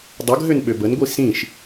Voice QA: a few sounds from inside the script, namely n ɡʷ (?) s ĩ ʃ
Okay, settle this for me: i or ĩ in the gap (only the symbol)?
i